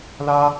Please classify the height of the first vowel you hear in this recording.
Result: low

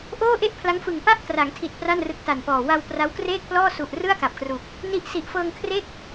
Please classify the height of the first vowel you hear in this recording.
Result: mid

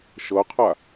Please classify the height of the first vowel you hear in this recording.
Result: mid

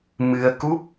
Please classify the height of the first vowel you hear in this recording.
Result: high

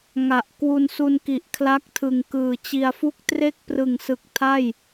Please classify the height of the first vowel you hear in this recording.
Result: low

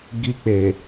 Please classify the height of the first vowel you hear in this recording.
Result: high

